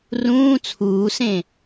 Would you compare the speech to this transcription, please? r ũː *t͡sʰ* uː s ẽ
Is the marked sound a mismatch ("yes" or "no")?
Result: no